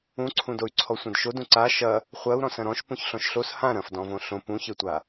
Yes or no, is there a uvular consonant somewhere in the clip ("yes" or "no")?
yes